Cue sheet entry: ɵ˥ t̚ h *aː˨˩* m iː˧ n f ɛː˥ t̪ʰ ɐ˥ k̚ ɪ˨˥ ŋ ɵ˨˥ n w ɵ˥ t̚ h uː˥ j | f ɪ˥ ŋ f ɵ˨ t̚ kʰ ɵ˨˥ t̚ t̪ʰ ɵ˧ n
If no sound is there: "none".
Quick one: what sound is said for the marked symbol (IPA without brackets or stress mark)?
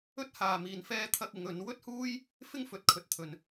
aː˨